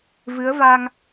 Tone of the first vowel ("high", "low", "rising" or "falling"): rising